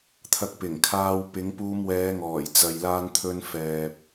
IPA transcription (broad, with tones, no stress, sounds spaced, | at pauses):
t̪ʰ ɐ˧ k̚ p ɪ˨˩ ŋ kʰ aː˧ w p ɪ˨˧ ŋ p uː˧ m w ɛː˨˧ ŋ ɔː˨˩ j t͡s ɐ˨ j l aː˧ n t̪ʰ ɵ˧ n f ɛː˨ p̚